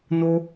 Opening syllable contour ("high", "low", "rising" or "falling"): high